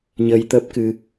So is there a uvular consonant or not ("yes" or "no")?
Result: no